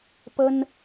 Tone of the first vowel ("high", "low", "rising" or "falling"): high